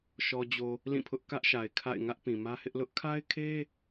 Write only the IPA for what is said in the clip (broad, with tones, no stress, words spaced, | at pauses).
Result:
ʃɔ˨d͡ʑo˨ | lĩ˦˨pʰʊ˦ʔ kä˦ʔʃa˨ɪ̯kʰa̰˦˨ɪ̯ ŋä˦ʔpĩ˨mä˦hɪ˦ʔ lʊ˦ʔkʰa˦ɪ̯kʰe˦